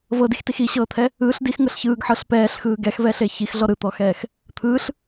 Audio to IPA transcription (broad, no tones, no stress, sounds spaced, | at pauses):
v ɤ d i x t i x i ɕ ɤː t̪ʰ ɛ | ɯː ɬ d i x ŋ ɤ ɬ ç ɯː ɡ ħ ɤ ɬ p ɛː ɬ x ɯː ɡ ɛ x v ɛ ɬ e ç i x ɮ ɔ ɾ ɯ t̪ ɔ x ɛː x | t̪ʰ ɯː ɬ